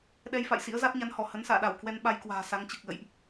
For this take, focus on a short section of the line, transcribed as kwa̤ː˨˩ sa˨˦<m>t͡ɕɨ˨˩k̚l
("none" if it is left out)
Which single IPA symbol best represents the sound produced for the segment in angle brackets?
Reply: ŋ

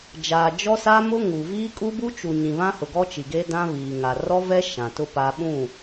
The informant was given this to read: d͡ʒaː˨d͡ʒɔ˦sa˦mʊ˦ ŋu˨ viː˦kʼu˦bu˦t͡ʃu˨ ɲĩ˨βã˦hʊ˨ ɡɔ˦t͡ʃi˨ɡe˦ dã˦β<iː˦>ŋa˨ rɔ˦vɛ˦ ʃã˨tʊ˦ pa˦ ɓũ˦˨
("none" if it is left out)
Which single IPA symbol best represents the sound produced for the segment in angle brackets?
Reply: iː˨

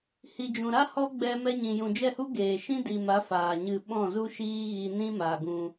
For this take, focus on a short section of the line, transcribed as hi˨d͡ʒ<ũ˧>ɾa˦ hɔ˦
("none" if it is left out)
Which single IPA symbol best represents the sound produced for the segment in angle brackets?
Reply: ũ˨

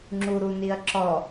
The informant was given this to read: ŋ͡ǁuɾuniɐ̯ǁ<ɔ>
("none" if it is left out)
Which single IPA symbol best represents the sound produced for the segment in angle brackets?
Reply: ɔ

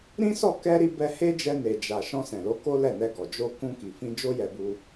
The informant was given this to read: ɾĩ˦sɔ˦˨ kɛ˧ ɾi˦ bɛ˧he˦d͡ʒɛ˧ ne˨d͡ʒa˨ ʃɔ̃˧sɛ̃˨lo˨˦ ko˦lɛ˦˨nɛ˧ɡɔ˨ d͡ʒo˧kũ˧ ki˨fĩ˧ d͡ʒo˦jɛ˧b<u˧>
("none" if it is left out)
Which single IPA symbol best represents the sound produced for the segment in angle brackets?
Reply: u˧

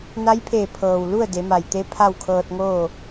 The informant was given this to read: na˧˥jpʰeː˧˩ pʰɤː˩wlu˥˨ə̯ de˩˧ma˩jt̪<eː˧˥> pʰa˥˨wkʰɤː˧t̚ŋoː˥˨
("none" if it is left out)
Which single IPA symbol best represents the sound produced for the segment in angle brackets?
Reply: e˧˥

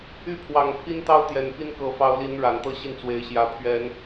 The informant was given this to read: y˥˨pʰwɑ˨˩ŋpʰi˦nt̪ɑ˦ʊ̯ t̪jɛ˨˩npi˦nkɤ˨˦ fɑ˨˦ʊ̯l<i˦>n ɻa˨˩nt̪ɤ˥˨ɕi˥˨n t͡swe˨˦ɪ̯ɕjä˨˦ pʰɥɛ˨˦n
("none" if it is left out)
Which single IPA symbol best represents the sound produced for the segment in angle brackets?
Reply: i˨˦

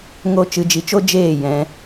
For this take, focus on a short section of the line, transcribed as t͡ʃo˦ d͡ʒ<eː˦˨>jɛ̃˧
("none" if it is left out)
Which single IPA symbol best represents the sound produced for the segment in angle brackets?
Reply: eː˦˨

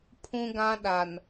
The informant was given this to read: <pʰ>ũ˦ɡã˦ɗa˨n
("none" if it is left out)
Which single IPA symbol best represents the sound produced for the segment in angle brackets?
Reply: pʰ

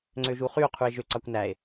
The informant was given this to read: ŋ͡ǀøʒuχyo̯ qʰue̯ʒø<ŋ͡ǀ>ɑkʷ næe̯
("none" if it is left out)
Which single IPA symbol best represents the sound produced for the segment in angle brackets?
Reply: ǀ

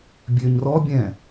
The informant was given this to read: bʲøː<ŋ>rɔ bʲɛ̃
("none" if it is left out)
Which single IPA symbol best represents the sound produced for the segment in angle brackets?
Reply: ɲ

